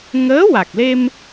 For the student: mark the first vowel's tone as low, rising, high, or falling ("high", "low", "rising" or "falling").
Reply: rising